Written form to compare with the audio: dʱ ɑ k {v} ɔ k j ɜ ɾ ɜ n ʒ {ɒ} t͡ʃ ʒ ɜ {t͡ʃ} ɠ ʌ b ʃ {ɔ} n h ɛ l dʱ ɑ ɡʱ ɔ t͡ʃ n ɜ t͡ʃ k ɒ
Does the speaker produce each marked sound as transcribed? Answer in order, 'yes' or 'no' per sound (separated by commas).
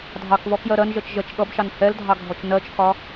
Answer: yes, no, yes, no